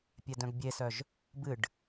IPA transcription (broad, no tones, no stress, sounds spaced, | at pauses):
pʲ ɛ d œ̃ ɡ bʲ e s œ ʒ | b ɨ ɖ